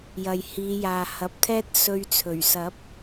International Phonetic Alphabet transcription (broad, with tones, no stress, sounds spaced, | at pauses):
j ɐ˨ j h iː˨˧ j aː˨ h ɐ˨˥ p̚ t̪ʰ ɛː˥ t̚ s ɵ˧ ɥ t͡sʰ ɵ˨˩ ɥ s ɐ˨˥ p̚